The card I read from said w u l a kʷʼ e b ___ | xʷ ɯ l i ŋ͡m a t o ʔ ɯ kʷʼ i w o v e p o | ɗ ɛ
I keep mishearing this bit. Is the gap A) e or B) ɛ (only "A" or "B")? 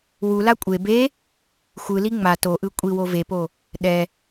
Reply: A